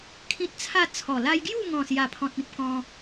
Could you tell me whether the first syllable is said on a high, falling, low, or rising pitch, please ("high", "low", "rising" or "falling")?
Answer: high